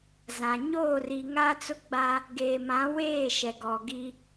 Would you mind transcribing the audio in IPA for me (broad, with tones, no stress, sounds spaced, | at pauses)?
z ã˨ ɲ oː˦˨ r i˨ ŋ a˦ t͡s ʊ˦ ɡ͡b a˦ | ɡ eː˨ m ã˨˦ w eː˦˨ ʃ ɛ˨ ɡ ɔ˨ ɡ i˦